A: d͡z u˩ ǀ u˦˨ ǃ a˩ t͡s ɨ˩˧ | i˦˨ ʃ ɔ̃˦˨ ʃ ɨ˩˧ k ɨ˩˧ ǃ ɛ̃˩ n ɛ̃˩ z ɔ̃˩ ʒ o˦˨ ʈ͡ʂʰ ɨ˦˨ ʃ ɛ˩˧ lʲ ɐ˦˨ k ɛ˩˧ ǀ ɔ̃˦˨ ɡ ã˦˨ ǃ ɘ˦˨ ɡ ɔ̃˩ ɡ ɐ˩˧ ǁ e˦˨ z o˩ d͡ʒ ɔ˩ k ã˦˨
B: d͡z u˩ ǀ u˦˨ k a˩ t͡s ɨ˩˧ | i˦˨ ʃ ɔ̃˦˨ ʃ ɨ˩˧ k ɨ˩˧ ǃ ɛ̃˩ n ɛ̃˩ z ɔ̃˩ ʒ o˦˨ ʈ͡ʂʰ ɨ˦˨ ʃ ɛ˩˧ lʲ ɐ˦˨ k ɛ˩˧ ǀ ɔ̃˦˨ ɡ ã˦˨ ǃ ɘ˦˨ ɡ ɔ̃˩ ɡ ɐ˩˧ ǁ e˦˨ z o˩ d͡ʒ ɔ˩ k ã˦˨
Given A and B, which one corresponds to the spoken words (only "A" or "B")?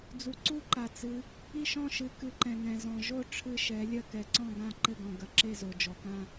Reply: A